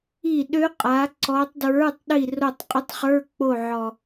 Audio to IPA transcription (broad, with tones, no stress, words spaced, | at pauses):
i˦˨ɗø˦˥qʼa˨˦ ǀɔ˨˦tˤdɹə˞˧˥˧tˤ ɗi˦˨ro˦˨tˤqʼə˦˥tˤχə˞˧˥˧ k͡po˦˨ʕɔ˨˩